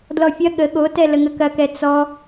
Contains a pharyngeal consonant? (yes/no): no